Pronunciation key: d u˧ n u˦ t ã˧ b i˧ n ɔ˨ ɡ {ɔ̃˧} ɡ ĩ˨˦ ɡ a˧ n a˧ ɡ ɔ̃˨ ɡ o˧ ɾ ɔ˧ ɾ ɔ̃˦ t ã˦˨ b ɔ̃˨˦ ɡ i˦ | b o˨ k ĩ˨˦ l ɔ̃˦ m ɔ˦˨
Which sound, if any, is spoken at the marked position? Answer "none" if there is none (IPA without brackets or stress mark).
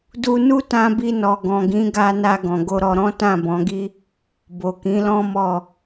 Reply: ɔ̃˨